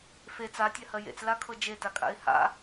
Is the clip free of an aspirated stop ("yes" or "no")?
no